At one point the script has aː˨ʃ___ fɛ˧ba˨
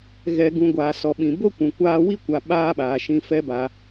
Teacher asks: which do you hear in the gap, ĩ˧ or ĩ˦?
ĩ˧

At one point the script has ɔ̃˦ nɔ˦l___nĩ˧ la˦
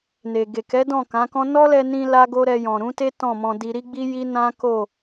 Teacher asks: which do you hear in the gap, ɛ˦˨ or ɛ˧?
ɛ˧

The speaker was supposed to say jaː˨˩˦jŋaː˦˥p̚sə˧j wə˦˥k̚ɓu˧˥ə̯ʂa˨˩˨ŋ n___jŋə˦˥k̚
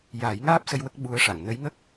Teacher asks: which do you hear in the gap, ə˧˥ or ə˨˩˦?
ə˧˥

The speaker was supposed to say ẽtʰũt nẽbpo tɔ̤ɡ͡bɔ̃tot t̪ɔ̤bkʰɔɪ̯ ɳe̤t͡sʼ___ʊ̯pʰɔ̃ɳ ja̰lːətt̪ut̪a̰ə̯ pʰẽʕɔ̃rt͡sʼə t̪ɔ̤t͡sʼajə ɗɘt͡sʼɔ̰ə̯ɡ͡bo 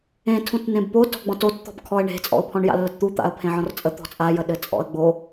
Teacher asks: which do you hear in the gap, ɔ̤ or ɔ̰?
ɔ̰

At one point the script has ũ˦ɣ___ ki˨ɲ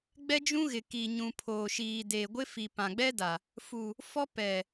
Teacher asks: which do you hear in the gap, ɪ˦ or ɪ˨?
ɪ˨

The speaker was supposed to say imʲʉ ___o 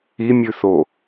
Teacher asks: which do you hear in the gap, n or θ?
θ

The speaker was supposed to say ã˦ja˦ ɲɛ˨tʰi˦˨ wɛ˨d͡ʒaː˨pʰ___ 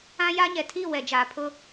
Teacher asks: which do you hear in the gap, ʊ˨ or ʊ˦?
ʊ˦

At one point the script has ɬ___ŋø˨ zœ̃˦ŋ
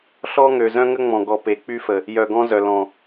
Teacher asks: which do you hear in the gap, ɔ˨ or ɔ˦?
ɔ˦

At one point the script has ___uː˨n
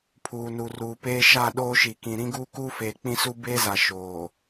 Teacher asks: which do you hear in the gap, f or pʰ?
pʰ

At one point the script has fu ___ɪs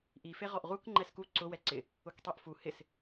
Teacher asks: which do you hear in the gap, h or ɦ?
h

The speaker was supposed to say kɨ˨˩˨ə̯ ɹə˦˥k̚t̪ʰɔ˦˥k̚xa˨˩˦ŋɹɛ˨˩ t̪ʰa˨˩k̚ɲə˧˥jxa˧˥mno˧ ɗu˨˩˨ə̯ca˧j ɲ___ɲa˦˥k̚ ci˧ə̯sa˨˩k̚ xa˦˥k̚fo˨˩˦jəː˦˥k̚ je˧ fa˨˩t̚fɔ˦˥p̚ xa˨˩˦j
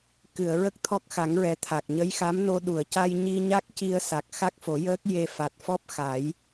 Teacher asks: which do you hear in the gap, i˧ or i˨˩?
i˧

